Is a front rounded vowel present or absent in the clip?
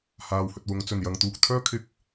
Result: present